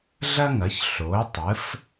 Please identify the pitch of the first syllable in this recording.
high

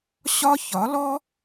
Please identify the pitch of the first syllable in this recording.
high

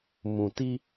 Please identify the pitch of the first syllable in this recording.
low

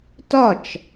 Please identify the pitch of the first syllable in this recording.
falling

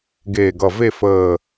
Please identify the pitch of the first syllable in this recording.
low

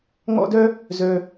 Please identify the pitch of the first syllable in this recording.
high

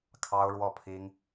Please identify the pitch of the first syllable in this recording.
high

